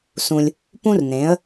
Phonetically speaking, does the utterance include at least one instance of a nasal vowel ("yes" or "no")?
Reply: yes